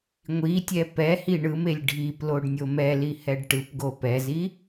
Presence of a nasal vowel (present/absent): absent